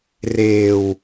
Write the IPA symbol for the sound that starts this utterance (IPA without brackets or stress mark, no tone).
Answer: r